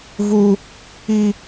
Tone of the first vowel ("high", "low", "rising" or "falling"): high